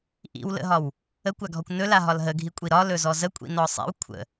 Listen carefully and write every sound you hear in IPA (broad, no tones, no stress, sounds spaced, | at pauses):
ʔ ḭ w l ə̰ ɦ ɒ w | ə kʷ a ɡʱ ɔ kʷ n ɵ l a ɦ ɒ l ɦ ə ɡʱ i kʷʼ i ɾ ɒ l ɵ z ɔ z ə kʷʼ ḭ n ɔ sˤ ḭ w kʷʰ ə̰